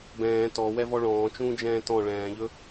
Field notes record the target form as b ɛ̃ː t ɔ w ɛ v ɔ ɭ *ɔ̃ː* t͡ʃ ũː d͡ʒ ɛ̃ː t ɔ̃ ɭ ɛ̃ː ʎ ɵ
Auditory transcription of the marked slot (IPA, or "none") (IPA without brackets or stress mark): ɔ̃ː